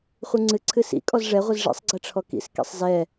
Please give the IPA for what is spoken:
χʷɨŋ͡ǀɨ ǀʰɨsḭ kʼɔzʐɛ ʁʷɨzʐḭsˤ ɡ͡ǀɛʈ͡ʂʰɔkḭs kḭsˤzɛ

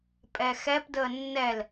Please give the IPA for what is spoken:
pʼɛxɛpdəː nːɛl

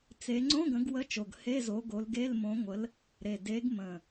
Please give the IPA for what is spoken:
t͡se˨˦ ŋ͡ǀõ˧˥˧ɡə̃˨˦ɡ wə˧˥˧t͡ʃo˨˩ɡ he˧˥˧zo˨˦ɡo˨˦lɡe˧˥˧l mõ˨˦ŋʷə˨˦l | ɾe˨˩de˨˦ɡmə̃˨˩

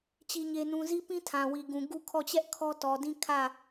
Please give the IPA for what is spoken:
t͡ɕi˦ɲe˦nũ˦ zi˦pĩ˦tʰã˨ wi˨ɡũ˨ ɡu˦kʰɔ˦˨ t͡ɕɛ˦ʔ kʰɔ˦tɔ˨dĩ˦ kʰä˦˨

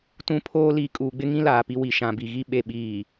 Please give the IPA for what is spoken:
tũ˦pʰoː˦ liː˨kʼuː˨ɡ͡bɪ˦ŋĩ˦ laː˨pi˦ wi˨ʃã˨bi˨ɣi˦ ɓe˨ɓiː˨

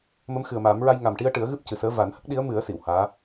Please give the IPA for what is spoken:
mə˧˥mxɨ˨˩ə̯maː˨˩˦mɹa˧j ŋa˨˩mʈi˧ə̯ʈɨ˨˩˦ə̯ ɣɨ˦˥p̚cɨ˨˩səː˧˥ va˨˩˦nhə˦˥k̚ɗi˧˥ə̯ mɨ˨˩˦ə̯ si˨˩˨whaː˧˥

